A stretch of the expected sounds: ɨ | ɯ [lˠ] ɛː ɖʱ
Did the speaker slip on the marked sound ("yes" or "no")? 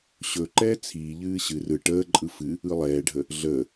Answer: no